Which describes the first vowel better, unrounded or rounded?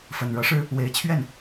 unrounded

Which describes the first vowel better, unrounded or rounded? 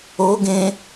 rounded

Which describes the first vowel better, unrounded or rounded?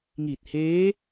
unrounded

